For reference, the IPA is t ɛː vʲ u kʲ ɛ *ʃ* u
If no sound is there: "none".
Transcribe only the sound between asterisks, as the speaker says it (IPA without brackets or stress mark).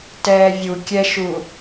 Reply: ʃ